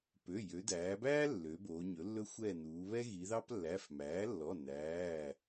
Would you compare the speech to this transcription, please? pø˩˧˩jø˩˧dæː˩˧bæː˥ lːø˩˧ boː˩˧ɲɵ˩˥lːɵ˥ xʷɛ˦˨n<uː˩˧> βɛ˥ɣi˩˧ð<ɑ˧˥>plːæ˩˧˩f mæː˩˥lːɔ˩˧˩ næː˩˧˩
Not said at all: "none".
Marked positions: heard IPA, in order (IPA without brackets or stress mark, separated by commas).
uː˩˧, ɑ˥